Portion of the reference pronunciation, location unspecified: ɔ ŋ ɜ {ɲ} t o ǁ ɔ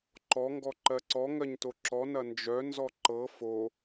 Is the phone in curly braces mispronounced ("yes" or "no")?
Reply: no